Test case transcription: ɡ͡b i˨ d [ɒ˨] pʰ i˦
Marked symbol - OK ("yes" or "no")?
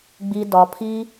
yes